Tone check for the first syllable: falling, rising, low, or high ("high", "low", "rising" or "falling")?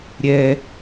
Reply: low